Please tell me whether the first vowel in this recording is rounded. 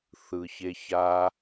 no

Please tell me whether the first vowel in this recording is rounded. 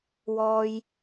yes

